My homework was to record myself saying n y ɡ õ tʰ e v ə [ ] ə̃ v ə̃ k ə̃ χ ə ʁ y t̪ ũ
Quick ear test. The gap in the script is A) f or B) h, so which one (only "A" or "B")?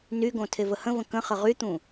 B